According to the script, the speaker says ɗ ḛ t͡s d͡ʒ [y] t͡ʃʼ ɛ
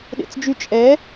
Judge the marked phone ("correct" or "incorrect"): correct